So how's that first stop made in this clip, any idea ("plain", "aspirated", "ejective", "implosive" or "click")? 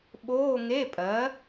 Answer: implosive